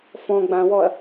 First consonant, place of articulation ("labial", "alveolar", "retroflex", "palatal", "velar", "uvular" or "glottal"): labial